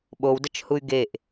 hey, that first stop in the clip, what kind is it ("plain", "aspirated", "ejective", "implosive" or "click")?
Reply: implosive